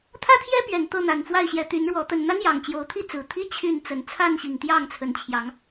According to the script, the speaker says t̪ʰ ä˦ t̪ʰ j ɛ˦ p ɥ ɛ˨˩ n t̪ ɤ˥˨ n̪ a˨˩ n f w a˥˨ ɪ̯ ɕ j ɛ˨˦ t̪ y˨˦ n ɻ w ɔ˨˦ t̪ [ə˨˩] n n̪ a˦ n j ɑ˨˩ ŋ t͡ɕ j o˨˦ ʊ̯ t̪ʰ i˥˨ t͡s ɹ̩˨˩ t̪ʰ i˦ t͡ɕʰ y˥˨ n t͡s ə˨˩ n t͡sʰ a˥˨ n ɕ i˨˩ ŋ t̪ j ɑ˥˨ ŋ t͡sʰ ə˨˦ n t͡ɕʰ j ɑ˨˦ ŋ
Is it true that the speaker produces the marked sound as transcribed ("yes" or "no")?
yes